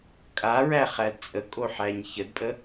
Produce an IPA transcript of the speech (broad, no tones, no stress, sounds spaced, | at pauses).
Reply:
kʼ a ɹ æ χ æ d t͡sʼ ə kʼ o ħ æ ɲ ç ə d pʼ ə